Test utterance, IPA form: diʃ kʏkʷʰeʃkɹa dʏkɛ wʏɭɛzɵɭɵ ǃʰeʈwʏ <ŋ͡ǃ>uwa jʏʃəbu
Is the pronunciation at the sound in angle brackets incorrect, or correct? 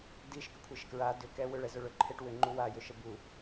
correct